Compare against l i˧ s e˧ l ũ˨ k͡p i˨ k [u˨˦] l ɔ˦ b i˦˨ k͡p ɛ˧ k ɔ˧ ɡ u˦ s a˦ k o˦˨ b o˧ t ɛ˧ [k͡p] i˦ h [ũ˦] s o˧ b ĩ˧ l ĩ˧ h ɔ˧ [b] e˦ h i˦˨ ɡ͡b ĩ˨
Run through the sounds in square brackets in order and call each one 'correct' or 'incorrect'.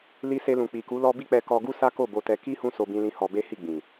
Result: correct, incorrect, correct, correct

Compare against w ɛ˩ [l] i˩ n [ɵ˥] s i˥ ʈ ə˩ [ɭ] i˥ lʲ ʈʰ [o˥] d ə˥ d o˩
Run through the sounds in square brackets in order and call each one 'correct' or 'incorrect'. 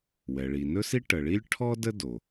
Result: incorrect, correct, correct, incorrect

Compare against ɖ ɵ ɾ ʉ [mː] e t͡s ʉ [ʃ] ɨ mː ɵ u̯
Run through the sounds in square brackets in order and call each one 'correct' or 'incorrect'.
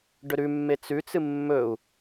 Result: correct, incorrect

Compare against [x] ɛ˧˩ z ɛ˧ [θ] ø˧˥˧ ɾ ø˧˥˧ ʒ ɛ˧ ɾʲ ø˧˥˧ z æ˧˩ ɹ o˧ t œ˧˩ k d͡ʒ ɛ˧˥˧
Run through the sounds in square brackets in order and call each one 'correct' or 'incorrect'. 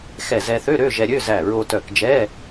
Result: correct, correct

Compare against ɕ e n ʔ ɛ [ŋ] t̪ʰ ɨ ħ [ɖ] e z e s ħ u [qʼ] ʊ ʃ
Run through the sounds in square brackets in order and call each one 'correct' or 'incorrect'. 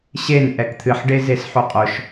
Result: incorrect, correct, correct

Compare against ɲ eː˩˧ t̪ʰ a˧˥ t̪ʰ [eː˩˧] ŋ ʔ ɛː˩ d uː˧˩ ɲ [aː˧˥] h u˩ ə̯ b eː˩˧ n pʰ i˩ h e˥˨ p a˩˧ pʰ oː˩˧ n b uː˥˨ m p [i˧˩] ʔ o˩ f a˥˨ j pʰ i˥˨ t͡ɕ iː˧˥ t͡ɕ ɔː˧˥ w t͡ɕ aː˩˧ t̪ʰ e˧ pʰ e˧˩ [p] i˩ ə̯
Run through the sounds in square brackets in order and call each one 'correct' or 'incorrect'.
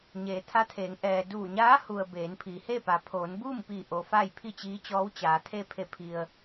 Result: correct, correct, correct, incorrect

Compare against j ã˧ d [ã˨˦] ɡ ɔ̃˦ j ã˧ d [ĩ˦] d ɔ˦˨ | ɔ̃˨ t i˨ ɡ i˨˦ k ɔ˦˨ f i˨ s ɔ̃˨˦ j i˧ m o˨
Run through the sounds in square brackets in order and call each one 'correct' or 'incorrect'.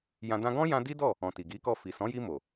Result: incorrect, incorrect

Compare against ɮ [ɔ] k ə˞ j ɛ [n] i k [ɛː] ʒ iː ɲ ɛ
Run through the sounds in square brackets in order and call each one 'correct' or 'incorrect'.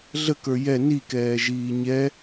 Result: incorrect, correct, correct

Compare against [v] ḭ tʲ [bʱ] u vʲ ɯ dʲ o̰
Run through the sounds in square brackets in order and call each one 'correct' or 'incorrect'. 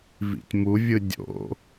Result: correct, incorrect

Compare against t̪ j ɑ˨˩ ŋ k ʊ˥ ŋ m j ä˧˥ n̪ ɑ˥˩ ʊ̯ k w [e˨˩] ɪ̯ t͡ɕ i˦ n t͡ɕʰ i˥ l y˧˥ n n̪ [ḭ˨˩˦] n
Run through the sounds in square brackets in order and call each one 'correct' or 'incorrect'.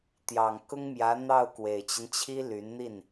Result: correct, incorrect

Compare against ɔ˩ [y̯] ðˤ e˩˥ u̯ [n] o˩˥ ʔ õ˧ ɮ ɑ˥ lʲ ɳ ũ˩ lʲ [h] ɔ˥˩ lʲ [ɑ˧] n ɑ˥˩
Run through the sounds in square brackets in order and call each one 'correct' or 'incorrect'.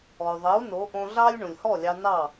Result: correct, correct, correct, correct

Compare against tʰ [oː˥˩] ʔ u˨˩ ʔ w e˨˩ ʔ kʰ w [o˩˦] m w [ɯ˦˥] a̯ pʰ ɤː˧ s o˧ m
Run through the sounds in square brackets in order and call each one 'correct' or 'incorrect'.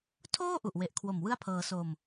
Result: correct, incorrect, incorrect

